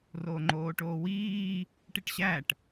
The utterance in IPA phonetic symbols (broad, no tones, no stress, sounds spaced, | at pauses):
r oː ŋ͡ǃ oː ʈ oː w iː | ʈ i ʈ ɕ æ ʈ